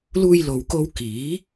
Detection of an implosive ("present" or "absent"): absent